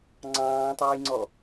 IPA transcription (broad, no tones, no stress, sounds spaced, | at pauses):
ŋ͡ǀ ɑ̃ː tˤ æ j ŋ͡ǀ ɔ